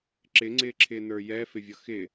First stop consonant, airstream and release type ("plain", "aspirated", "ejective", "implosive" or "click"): click